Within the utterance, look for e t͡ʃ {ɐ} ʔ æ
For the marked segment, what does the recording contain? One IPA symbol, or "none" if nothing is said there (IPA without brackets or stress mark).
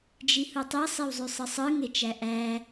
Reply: æ